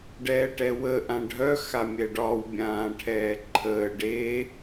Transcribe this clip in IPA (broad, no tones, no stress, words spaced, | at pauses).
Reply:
ɖɛːʈɛwə ʔãɖʱœ xamʲɛɖɒw bʲãːʈʰɛːǃʰəː ɖe